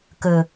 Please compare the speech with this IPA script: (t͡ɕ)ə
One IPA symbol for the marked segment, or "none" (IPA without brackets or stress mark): k